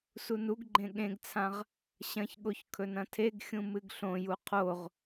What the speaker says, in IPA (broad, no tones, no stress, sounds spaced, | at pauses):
s u n u ɡ ɡ͡ǃ ẽ ɠ ẽ ɡ t͡sʰ ã ʁ | ɕ ɐ̃ ç ɠ o ç kʰ ɵ n ɐ̃ tʰ e ɡ xʲ ũ m ɨ ɡ ɬ õ j u qʰ o ʁ